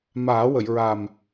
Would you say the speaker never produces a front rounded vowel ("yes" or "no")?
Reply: yes